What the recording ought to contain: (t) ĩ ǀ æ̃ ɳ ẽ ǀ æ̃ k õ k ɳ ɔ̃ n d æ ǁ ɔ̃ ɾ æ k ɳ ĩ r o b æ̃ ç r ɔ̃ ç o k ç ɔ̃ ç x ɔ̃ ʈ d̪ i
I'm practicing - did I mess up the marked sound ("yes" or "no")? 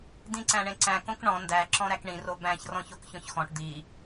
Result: yes